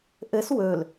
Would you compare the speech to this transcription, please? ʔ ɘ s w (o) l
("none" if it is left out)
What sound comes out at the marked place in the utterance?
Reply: ɵ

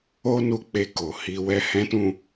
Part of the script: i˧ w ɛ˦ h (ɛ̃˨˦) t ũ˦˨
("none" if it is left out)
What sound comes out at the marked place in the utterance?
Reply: ɛ̃˦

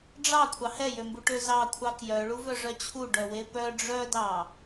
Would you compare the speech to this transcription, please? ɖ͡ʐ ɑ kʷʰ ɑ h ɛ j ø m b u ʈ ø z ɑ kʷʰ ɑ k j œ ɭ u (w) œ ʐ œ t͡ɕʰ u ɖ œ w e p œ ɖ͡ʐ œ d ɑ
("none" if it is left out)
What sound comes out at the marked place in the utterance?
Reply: v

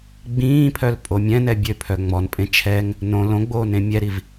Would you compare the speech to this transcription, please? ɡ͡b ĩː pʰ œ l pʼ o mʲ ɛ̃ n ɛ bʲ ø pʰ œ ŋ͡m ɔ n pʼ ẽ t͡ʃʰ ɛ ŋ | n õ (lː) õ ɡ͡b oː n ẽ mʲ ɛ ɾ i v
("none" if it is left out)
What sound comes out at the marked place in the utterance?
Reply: l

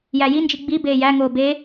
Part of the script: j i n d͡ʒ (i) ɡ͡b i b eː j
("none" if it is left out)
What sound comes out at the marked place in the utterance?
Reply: i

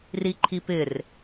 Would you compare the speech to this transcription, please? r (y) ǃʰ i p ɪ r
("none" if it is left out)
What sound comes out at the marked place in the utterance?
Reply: i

